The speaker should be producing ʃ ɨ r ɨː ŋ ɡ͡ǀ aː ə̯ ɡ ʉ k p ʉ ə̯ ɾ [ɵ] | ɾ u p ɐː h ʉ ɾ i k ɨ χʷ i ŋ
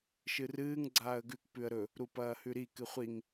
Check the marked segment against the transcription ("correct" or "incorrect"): correct